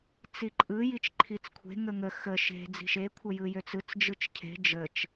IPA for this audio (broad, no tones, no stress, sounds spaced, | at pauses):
t͡s i ǃʼ ɯ j i t͡ʃ ǃʰ i t͡s kʷʰ e̤ ŋ ə ŋ ə x ə ʃ e̤ d͡z i̤ ʃ e kʷʰ ə j ɯ j ø t͡s ɯ t͡s d͡ʒ ɯ t͡ʃ cʰ e̤ d͡ʒ ə t͡ʃ